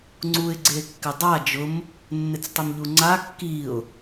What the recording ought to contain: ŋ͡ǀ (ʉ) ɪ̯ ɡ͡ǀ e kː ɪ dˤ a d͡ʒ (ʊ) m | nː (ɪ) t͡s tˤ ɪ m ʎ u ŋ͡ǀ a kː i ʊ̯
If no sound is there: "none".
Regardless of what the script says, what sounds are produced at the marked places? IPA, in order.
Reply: u, ʊ, ɪ

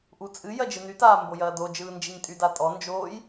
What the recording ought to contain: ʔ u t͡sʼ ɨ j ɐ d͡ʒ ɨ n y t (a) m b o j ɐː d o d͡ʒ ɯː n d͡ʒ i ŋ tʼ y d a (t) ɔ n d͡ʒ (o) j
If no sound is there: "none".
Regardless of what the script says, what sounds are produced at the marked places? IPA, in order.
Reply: aː, tʼ, oː

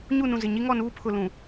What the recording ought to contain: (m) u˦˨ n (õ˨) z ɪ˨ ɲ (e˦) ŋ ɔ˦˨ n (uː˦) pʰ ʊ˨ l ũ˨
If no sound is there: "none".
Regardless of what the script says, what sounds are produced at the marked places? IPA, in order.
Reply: ɲ, ũ˨, i˦, uː˦

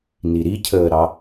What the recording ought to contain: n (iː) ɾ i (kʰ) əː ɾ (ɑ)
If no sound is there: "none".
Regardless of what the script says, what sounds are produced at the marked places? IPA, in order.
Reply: i, cʰ, ɑ

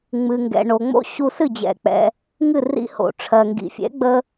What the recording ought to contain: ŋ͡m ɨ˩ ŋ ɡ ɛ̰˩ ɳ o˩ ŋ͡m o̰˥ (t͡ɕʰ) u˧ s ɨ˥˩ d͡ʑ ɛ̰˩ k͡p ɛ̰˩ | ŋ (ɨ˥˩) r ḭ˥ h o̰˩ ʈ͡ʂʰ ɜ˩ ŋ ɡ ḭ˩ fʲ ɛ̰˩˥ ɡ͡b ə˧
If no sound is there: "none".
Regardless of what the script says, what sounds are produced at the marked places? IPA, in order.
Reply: ɕ, ɨ˥˩

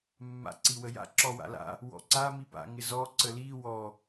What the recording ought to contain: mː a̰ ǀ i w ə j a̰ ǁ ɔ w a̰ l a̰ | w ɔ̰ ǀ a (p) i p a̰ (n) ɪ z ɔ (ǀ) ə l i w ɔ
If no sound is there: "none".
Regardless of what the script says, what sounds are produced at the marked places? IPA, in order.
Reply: m, ŋ, ǀ

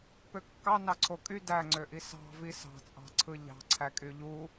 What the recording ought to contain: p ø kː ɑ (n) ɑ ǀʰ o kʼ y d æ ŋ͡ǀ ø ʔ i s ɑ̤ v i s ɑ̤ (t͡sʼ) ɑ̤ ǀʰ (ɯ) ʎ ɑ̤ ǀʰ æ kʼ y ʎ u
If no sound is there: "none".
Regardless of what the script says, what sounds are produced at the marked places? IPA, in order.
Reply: n, t͡sʼ, ɯ

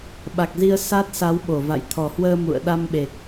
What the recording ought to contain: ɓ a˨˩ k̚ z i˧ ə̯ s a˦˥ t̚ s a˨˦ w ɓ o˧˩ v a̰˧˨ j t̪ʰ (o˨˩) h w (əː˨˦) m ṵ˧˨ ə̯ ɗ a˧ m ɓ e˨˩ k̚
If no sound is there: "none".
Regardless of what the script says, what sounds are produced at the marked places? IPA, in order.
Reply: ɔ˨˩, əː˧

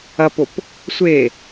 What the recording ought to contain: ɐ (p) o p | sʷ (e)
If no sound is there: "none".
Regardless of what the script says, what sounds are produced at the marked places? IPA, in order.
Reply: p, e

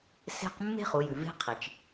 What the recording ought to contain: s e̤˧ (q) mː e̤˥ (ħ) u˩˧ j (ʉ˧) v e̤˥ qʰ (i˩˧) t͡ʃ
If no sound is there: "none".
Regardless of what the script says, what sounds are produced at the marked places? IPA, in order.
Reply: q, χ, ʉ˩, i˩

